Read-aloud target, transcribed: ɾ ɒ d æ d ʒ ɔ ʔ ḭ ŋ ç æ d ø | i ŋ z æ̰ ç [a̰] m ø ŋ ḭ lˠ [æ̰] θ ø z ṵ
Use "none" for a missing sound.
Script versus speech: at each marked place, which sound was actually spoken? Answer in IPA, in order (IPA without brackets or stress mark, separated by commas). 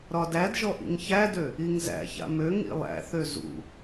a̰, æ̰